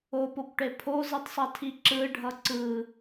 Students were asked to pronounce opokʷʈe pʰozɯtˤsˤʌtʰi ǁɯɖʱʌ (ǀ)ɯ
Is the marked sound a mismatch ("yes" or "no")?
no